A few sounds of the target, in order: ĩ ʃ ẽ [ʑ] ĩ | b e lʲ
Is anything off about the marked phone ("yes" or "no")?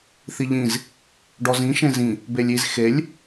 yes